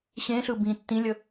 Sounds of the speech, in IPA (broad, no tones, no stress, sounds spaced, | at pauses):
ɕ ẽ ɬ ɯ b ĩ tː ĩ lʲ ə